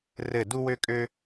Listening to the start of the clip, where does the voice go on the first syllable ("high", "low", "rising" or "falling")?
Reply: falling